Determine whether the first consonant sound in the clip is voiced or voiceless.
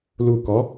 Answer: voiced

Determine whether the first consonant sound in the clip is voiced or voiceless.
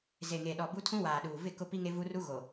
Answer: voiced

